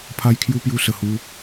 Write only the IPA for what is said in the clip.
pʰ a˦ j kʰ j u˦ p j u˧ s ə˨˩ h u˧

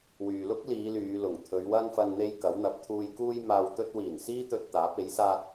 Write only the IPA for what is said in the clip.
w yː˨ l ʊ˥ k̚ l iː˨˧ l yː˨˧ l ʊ˨˩ ŋ t̪ʰ ɵ˨˧ ɥ w ɐ˥ n f ɐ˧ n n̪ e˥ j k ɐ˨˥ w n̪ ɐ˨˥ p̚ t̪ʰ uː˧ j k uː˥ j m aː˧ w t̪ ɵ˥ t̚ w iː˨˩ n s iː˥ t̪ ɵ˧ t̚ t̪ aː˨˥ p̚ e˨˥ j s aː˥ t̚

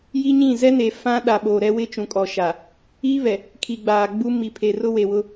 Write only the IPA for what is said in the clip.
j i˦ ɲ ĩ˦˨ z ɛ˦ n e˨ f ã˦ ɗ a˨ ɓ o˨ ɾ ɛ˦ w ɪ˦ t͡ʃ ũ˨ kʼ ɔ˨ ʃ a˨ | iː˦ β ɛ˨ | kʰ i˨ ɡ͡b aː˨ ɡ͡b u˦ m i˨ pʰ e˨ r ʊ˦ w e˨ w ʊ˦

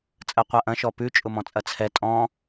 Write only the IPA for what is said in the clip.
t͡sʼ ɜ qʷ a ʔ ɐ̃ ʃ ɔ p ʉ t͡ʃʼ ʊ m ɔ̃ t͡sʼ ɐ t͡sʰ ɛ tʼ ɔ̃

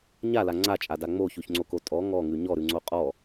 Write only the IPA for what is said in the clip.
ɲ a l a ŋ͡ǀ a t͡ʃʼ a d a ŋ͡m o ç ʉ ç ŋ͡ǀ o k o tʼ ɔ ŋ ɔ ŋ ʉ ɲ ɔ ɾ ʉ ŋ͡ǀ o qʼ ɔ

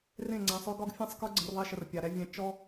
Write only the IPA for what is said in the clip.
r ẽ˦˨ ŋ͡ǀ ã˨ sˤ ø˦ ɡ ɒ˦ ɡ fʲ ã˦ sˤ k ə˞˦ ɡ͡ǀ ə̃˧ r ðˤ i˧ ʃ ə˨ r pʲ a˨ ɾ ɛ˦ vʲ ɛ̃˧ t͡ʃ ɔ˦

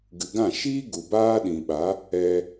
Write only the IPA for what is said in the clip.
ɡ ɨ˨ ɡ ã˦˨ ʃ iː˦ ɡ u˨ b aː˦ ɗ ĩ˨ ɓ a˨˦ | ɛ˧

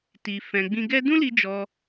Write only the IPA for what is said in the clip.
t i˨ f ɛ̃˨ ɡ͡b ĩ˧ ɡ ɛ˦ d ũ˦ l i˧ d͡ʒ ɔ˧

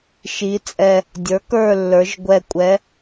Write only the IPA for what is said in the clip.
ʃ i˩˧ t͡sʼ ɛ˨˩ | dʲ ə˞˩˥ k ə˞˦˨ lː ə˞˩˧ ʒ ɡʷ ɛ˨˩ kʷʼ ɛ˩˧

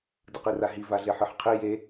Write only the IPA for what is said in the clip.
d ɯ q i r a ɦ i v a ɮ e ħ ɯ ħ qʰ i j e

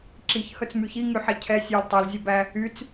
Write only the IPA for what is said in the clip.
ǁ i ç h ɵ t͡s m y ç i ŋ y ħ ɛ cʰ ɛ sʲ ø l tˤ e l zʲ œ b æ | y t͡s

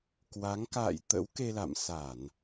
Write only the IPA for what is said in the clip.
k w a˨˦ ŋ k a̰ː˧˨ j t̪ ə̰˧˥ w k e˧ l a̰˧˨ m s a˧˩˨ n

